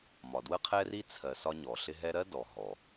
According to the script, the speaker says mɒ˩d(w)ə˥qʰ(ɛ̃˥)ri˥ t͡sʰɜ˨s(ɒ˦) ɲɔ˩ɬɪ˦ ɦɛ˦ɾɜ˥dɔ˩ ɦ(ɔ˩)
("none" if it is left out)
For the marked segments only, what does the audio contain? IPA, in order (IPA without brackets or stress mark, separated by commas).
w, ɛ˥, ɒ˦, ɔ˩